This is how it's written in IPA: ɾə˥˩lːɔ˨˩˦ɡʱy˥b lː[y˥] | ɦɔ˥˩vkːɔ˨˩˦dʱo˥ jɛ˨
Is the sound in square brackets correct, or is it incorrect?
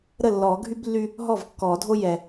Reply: correct